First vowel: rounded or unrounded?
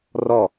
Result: rounded